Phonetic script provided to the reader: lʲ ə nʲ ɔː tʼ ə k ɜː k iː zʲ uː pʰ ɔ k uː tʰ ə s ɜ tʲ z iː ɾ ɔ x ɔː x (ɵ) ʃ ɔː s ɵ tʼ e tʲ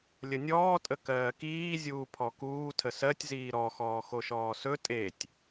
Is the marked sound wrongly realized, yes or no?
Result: yes